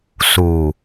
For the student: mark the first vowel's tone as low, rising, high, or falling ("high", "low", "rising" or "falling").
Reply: low